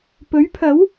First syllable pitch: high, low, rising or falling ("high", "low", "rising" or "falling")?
rising